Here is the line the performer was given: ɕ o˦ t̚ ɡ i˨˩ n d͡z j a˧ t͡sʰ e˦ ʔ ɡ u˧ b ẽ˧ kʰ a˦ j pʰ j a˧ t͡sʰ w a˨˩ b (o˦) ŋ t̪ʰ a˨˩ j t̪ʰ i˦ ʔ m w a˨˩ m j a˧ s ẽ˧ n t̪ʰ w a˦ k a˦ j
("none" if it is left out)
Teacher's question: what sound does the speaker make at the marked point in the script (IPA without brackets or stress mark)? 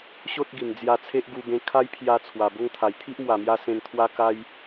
o˦